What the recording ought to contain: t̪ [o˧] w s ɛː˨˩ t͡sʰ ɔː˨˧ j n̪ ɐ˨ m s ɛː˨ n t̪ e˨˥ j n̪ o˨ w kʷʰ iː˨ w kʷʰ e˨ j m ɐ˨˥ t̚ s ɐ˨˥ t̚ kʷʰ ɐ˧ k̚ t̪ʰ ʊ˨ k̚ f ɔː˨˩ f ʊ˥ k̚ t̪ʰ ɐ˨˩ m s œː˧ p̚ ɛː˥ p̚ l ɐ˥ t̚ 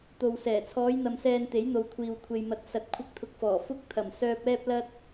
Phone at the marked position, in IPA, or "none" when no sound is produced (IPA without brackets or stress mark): o˨